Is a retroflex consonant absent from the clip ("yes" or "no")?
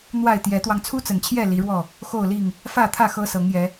no